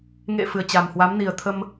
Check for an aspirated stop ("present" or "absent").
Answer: present